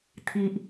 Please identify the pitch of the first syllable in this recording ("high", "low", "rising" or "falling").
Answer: low